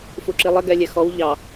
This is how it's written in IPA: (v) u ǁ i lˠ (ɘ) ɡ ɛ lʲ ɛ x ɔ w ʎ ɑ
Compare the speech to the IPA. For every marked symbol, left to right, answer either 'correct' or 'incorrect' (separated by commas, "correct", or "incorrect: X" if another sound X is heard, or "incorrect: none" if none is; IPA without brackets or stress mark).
incorrect: f, correct